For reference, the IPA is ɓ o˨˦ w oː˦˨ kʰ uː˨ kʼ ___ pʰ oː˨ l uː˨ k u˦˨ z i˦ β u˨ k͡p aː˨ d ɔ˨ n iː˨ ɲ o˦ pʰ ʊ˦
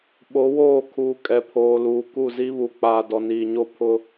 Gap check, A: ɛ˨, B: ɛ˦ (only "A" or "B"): A